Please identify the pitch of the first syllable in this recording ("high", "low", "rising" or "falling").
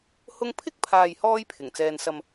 high